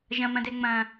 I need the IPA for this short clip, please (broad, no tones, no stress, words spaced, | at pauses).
ʒɐ̃mɐ̃dɛ ŋ͡mɐ̃